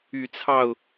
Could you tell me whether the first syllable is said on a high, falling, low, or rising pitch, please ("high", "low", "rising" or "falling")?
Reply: low